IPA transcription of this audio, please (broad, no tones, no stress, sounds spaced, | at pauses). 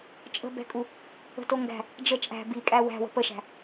t͡ʃʼ ə̤ b ɛ̤ kʼ u | ə̤ t o ŋ ɡ æ̤ | d͡ʒ ə t͡ʃʼ æ̤ b i kʼ æ w æ̤ w ə̤ p ə ʃ æ̤